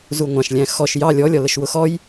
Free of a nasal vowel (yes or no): no